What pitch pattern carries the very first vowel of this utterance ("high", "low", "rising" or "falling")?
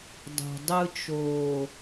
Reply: low